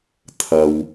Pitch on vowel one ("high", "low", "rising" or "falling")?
low